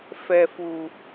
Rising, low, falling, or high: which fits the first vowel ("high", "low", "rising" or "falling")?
low